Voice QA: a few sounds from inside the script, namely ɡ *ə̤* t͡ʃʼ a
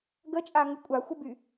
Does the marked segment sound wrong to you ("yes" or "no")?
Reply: yes